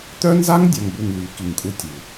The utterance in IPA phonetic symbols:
t̪œ˦nza˦ŋdʲa˨ŋbu˨ŋ ly˨˦ki˨ŋkʼu˦ tʲu˨

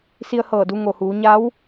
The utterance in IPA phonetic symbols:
si˧ə̯hɤː˧˩du˧ ŋo˩huː˩˧ɲa˧˥w

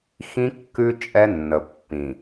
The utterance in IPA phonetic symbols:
xĩ˦ kːʉ˦ t͡ʃʼɛ˦nːə˨ pːĩ˨

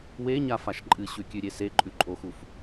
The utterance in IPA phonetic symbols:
weɲafaʃ ǃʼɨɕʉkʲʉɾʲe seǃʼʉǃʼoxuf

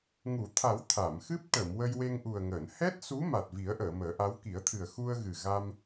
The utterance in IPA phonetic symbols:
ŋu˨˩˨t̪ʰa˨˩˦w t̪ʰa˨˩˨mxɨ˦˥p̚ ʈə˨˩˨m wə˧jwe˧ŋʔu˨˩ə̯ŋəː˨˩˨n hɛ˦˥t̚su˧˥ ma˨˩t̚vi˨˩˦ə̯ʔəː˨˩˨ məː˨˩˦ʔa˧˥w ki˨˩˦ə̯t̪ʰɨ˨˩ə̯ xu˧ə̯ɣɨ˨˩ ɣa˧m

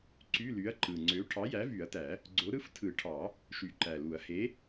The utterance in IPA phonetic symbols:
ǀy˧˥˧ly˨˥ɐ̯ǃɯ˨˩ ŋ͡ǀø˨˥ ʈʰɑ˨˥jæ˨˥vy˨˩˦ɐ̯tæ˨˩˦ | ɡ͡ǀo˨˥ɾɯ˧˥˧f tʰɯ˨˩˦ʈʰɑ˨˩˦ | ʃy˨˩˦ǃæ˨˩lu˨˩˦ɐ̯ he˨˥

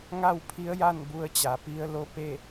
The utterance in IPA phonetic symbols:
ŋa˥˨wpʰi˧˥ə̯ja˥˨n bu˧ə̯ t͡ɕa˩˧pi˧˥ə̯lo˥˨ pe˥˨

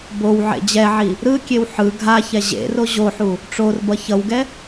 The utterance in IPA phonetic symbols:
bow ʕḛd͡ʑɛʕi | ɾɯkʲew ħɯ ɡʱaçɛ ʑḛro ʑoħu | ʈ͡ʂorbʌ çʌwɡɛ

